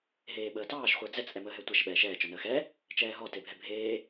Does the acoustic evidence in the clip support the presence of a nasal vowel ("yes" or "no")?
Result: no